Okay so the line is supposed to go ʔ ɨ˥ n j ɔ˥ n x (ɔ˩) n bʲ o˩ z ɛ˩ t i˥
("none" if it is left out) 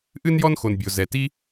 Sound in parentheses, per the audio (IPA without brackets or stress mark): o˩